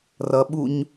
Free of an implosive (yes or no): no